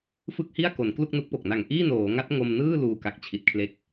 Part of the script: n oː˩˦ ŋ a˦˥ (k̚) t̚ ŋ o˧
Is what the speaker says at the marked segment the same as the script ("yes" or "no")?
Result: no